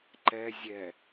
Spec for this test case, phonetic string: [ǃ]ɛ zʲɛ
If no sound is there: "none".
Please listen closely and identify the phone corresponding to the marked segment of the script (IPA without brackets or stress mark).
ǃ